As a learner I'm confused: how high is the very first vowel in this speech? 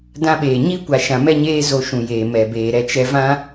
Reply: low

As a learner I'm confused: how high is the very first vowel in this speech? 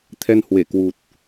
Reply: mid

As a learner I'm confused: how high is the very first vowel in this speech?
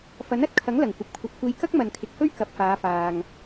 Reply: low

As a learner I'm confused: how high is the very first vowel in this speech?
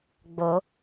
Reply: mid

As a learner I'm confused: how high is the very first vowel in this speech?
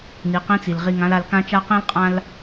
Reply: high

